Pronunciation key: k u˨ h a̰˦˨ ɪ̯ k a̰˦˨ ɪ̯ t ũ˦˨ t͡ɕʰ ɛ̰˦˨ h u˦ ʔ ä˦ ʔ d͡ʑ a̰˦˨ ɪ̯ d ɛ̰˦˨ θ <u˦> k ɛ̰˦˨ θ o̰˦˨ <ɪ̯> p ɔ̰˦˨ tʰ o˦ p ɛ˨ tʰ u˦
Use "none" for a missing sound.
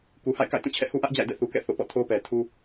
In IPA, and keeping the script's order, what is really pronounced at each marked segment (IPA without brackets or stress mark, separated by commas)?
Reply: u˨, none